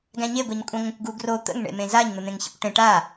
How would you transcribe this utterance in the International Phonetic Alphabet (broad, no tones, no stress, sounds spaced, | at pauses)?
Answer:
ɡ æ̃ ɲ e ɡʷ e ɲ kʷʼ ə̃ ŋʷ ə̃ kʷ ɡ u ɡ r o t̪ ə̰ ŋ ɳ ḛ m ẽ z a ɲ n̪ ə n̪ ẽ ŋ ç ḛ kʷ ʈ ẽ ʈ a